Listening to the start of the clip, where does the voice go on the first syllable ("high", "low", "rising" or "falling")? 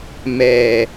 low